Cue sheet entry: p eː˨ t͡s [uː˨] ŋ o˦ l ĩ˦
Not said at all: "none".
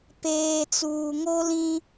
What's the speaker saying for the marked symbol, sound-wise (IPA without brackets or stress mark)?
uː˨